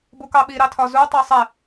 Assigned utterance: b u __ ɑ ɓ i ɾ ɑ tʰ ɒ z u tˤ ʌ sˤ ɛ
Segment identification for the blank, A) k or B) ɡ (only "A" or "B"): A